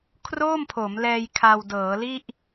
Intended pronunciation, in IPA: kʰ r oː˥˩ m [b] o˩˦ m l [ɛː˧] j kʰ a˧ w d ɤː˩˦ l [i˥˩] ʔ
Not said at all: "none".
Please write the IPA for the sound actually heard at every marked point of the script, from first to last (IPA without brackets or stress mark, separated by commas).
pʰ, ɛː˧, i˥˩